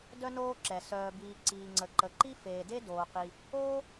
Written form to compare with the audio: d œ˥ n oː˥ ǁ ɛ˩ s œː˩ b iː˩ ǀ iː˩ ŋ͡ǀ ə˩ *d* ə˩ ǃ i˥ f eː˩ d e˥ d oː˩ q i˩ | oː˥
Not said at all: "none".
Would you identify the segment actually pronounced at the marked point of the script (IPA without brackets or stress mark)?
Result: ǃ